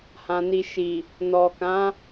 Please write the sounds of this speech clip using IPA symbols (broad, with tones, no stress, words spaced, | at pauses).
hã˨ni˨ ʃi˨ | nɔ˨kã˨˦